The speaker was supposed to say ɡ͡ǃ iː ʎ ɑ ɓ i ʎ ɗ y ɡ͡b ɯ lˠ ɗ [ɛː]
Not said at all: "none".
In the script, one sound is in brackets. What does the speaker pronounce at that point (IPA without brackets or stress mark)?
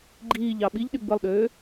øː